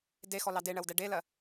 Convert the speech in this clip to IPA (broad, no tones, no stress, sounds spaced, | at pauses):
d e x ɔ l ɑ d e ɳ ɜ w d ɛ ɖ e l ɜ